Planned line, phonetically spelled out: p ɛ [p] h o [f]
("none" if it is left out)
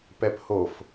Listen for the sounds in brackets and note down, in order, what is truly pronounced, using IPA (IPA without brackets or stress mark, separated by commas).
p, f